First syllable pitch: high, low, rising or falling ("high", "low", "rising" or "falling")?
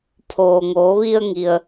low